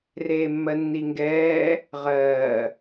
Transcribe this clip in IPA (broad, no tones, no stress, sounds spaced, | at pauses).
r eː mː ɜ nː i ŋ ɡ ɛː | ʁ ɜː